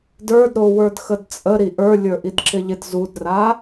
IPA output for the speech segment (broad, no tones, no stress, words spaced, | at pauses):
də˞dɾo wə˞dxədt͡sʼəɾi ʔə˞ lʲə˞ʔidǁɪʎɪd zudra